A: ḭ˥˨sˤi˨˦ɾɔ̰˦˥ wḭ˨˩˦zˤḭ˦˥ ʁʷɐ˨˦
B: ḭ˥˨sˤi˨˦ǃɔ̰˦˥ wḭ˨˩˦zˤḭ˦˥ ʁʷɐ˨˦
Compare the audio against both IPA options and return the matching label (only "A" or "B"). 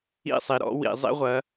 A